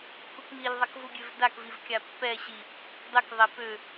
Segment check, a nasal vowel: absent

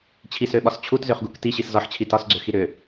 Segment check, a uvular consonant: present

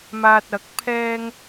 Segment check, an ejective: absent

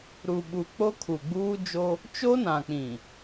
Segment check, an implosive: present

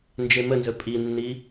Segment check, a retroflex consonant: absent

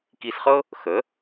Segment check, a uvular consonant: present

